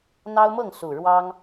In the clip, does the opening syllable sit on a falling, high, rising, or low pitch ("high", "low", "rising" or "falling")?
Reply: high